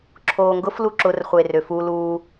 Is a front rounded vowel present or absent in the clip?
present